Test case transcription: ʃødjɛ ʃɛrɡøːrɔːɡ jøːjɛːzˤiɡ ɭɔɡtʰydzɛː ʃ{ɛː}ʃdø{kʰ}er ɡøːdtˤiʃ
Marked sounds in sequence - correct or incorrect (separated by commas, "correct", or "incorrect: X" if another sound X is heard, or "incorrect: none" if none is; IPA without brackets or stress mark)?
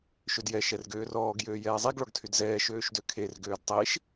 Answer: incorrect: øː, correct